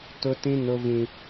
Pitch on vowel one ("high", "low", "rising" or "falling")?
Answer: high